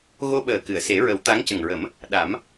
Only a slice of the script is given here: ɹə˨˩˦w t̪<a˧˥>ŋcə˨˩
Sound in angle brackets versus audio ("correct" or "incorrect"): correct